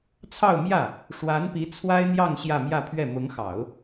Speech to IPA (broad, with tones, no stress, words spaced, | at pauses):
t͡sʰɑ˥˧ʊ̯mjä˥˩ | ʂwa˧˥npi˧˥ t͡sʰwa˥ɪ̯n̪jɑ˥˧ŋ ɕjä˥˧mjä˥˧pʰɥɛ˥˩ mʊ˧˥ŋxɑ˨˩˦ʊ̯